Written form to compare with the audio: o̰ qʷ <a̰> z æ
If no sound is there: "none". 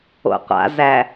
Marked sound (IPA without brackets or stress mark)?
a̰